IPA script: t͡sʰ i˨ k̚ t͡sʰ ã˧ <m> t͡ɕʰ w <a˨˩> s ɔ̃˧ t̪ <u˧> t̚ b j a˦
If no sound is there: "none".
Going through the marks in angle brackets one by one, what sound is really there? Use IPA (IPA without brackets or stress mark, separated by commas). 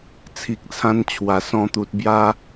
n, a˨˩, u˨